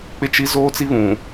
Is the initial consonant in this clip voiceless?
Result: yes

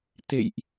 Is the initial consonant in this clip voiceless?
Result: yes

